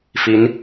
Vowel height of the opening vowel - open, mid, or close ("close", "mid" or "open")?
close